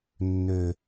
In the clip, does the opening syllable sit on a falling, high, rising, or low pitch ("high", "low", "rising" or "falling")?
low